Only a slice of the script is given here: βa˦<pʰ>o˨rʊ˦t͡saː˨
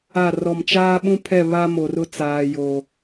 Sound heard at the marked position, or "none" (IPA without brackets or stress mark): m